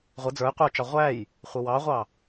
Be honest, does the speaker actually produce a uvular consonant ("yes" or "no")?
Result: yes